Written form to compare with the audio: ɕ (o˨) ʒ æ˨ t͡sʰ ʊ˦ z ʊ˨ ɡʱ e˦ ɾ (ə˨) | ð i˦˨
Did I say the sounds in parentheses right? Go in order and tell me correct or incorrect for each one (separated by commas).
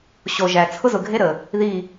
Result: correct, correct